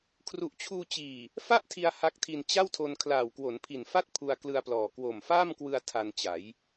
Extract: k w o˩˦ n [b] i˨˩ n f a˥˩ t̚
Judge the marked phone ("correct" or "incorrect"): incorrect